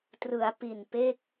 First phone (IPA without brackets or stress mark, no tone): t